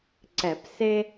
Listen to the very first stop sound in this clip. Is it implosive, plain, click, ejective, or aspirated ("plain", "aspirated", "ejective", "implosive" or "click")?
click